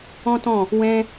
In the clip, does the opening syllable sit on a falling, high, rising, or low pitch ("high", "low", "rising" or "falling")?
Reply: high